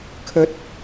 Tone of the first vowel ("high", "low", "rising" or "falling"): rising